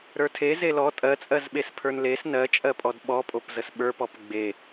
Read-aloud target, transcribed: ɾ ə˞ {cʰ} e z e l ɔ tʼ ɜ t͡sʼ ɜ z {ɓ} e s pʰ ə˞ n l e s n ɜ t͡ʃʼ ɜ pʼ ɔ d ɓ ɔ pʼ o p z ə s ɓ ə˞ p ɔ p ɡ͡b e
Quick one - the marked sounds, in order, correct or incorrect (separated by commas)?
incorrect, correct